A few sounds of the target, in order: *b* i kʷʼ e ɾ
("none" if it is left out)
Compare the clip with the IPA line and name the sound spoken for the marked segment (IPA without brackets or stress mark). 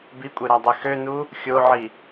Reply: b